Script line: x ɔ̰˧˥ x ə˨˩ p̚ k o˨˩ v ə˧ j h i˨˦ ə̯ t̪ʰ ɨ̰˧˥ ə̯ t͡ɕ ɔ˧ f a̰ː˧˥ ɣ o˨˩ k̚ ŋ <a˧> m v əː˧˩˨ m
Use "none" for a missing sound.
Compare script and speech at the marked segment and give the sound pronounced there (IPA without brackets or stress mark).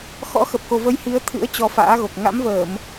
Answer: a̰˧˥